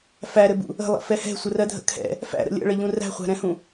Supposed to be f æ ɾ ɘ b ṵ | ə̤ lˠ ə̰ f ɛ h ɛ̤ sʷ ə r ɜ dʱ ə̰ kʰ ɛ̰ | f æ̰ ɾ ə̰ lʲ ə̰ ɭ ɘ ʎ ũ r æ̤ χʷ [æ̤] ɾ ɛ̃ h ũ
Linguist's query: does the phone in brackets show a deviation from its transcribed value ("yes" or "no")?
no